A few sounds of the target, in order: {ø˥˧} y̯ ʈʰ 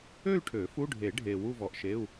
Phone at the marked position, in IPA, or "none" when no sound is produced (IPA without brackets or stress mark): ø˥˧